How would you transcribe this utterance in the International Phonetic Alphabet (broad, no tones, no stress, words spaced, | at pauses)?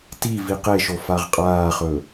ti viqeʃo faʁqʼaːχɵ